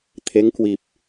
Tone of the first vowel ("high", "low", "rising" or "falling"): rising